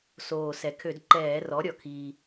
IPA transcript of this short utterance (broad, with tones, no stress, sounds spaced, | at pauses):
s oː˨˩ s ɛ˩˧ kʰ ø˧˩˧ d ǃ ɛː˧˩˧ r ɔ˩˥ ɾʲ ɔ˩˧ kʰ iː˧